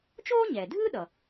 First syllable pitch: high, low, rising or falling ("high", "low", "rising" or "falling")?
high